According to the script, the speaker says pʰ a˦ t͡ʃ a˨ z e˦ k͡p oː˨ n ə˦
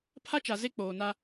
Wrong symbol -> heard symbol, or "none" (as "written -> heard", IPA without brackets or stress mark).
ə˦ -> a˦